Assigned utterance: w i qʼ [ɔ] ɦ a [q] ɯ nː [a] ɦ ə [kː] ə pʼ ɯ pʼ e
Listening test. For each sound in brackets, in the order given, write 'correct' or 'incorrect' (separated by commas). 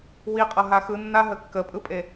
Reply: incorrect, incorrect, correct, correct